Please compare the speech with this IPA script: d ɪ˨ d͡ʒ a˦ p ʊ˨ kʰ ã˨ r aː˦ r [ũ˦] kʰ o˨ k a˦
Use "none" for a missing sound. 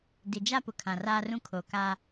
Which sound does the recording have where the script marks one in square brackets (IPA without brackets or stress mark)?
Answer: ũ˦